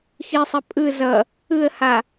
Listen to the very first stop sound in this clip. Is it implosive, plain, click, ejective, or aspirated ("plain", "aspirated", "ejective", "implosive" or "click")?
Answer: ejective